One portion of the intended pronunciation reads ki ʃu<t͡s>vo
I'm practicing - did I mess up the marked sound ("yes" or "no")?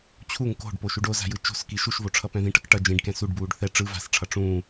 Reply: yes